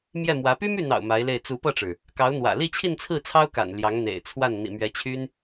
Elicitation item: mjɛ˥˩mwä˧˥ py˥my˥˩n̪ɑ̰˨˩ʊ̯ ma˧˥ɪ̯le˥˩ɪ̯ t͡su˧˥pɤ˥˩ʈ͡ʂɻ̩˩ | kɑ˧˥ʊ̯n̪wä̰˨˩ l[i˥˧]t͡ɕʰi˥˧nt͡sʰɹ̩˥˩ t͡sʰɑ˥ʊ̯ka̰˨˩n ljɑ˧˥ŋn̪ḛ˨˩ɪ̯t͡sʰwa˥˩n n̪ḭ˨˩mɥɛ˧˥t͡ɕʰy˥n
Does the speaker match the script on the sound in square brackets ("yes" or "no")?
yes